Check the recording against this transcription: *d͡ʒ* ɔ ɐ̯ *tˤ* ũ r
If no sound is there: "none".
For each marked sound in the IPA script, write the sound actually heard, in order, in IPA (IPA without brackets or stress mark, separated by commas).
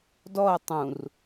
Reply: d, tˤ